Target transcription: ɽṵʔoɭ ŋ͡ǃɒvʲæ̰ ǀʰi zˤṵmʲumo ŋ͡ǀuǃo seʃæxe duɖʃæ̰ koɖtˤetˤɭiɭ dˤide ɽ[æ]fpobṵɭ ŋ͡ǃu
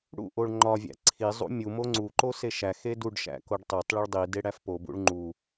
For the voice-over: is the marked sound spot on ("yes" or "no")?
yes